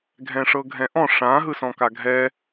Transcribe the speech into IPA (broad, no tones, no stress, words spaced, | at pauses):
ɡʱɛ̃ʂɤɡʱɛ̃ʔɔ̃ ʂã ɦɯsɔ̃kaɡʱɛ